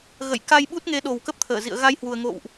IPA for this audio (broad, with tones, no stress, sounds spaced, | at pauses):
ɣ ə̰˧˨ j k a˧ j ɓ u˦˥ t̚ ŋ e˨˦ ɗ o˨˩ w k ə˦˥ p̚ t̪ʰ əː˧˩ z ḭ˧˨ ə̯ ɣ a˧ j h w u˨˩ ə̯ ŋ o̰˧˨ w ʔ